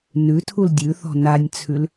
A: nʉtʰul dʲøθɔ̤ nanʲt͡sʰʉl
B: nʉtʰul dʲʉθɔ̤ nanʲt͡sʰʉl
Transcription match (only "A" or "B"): B